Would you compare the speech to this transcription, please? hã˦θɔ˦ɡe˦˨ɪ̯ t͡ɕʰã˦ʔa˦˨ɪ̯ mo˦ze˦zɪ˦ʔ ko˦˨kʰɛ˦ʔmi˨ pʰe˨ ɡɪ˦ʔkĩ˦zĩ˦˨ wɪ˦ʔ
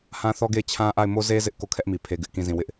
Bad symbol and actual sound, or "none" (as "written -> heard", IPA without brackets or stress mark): none